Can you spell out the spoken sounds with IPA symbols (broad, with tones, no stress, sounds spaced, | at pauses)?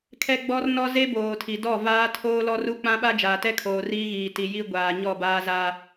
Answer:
kʰ ɛ˦ ɡ͡b ɔ˦ r n ɔ˦ z e˦ b oː˨ tʰ i˨ d ɔ˦˨ v aː˦ tʰ oː˦ l ɔ˦ r u˦ k͡p ã˦ ɓ a˦ d͡ʒ aː˨ t ɛ˦ kʰ oː˨ r iː˦ ɣ iː˨ t i˨ j i˦ ɡʷ aː˨ ɲ ɔ˦˨ b aː˦ z aː˦